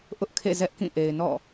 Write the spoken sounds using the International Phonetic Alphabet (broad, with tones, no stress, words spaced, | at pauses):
ʔʊ˦ʔkʰḛ˦˨ zɛ˦ʔkĩ˦˨ ʔe˨ɪ̯nɔ̰˦˨